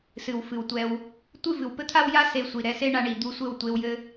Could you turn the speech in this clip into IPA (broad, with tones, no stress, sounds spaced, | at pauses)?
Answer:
s ɨ˨ w f ɨ˨ w tʷ ɛ˧ w | tʷ ɨ˦˨ v ɨ˨ w p ɘ˦ t̪ʰ a˦ w j a˦ s e˧ sʷ i˨ ɾ ɛ˧ s e˦ ɳ a˧ ɳ i˨ d̪ u˧ sʷ ɘ˦˨ w tʷ e˧ w j ɘ˦